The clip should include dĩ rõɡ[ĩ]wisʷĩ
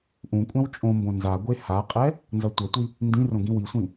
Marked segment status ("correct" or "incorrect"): correct